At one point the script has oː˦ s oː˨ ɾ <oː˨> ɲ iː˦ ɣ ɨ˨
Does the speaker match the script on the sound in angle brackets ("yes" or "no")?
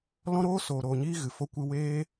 yes